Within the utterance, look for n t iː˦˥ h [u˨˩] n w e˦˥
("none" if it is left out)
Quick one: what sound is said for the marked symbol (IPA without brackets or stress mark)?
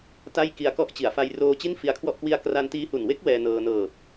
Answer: u˨˩